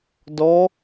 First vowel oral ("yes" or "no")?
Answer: yes